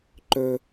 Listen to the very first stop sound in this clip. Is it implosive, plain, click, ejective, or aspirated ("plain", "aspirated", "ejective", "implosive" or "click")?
click